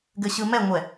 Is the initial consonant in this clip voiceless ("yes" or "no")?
no